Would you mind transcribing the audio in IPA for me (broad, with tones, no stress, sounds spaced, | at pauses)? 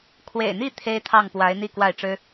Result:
kʰ w ḛ˨˩ ɪ̯ n̪ i˥˩ t̪ʰ e˥ ɪ̯ t̪ʰ ɑ˥˩ ŋ p w a˧˥ ɪ̯ n̪ i˥˧ k w a˥˩ ɪ̯ ʈ͡ʂ ɻ̩˥